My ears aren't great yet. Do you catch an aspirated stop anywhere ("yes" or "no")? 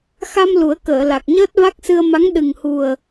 no